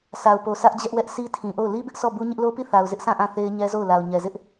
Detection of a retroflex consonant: absent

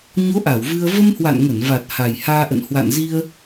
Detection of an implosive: absent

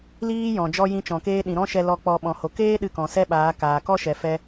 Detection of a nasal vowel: present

